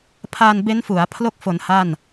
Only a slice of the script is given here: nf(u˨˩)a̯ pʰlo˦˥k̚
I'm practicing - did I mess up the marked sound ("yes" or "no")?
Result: yes